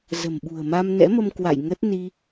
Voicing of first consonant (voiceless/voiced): voiced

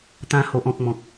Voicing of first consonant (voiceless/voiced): voiceless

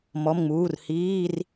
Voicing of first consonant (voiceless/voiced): voiced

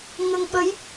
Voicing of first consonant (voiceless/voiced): voiced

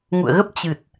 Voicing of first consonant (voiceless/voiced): voiced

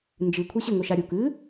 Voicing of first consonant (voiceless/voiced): voiced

